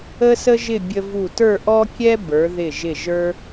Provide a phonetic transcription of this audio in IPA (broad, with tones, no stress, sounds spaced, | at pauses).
ə˥ s ə˥ ʒ ɪ˥˧ bʲ ə˧ v u˧˩ t ə˞˥˧ ʔ ɔ˥ kʲ ɛ˥ b ə˞˩˧ ð ɪ˧˩ ʒ ɪ˧˩ ʒ ə˞˧